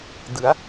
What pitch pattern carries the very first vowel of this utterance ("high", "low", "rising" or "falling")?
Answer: rising